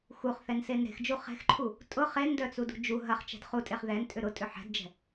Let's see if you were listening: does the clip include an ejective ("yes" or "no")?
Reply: yes